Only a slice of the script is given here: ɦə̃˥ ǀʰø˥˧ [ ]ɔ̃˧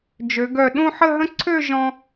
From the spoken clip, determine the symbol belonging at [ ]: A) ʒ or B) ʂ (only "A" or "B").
A